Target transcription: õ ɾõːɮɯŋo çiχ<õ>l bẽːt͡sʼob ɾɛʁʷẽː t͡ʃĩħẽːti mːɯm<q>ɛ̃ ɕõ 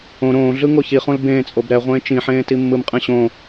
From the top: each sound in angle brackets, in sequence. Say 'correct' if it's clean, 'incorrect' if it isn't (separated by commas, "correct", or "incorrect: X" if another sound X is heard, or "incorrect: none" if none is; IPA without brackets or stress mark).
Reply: correct, incorrect: qʼ